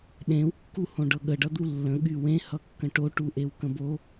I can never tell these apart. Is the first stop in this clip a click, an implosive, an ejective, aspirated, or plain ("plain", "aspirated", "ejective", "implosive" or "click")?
implosive